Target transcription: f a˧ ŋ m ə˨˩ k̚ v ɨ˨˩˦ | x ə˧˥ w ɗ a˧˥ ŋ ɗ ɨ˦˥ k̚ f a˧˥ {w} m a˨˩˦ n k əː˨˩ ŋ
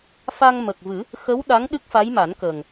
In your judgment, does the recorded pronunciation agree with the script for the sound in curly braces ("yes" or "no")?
no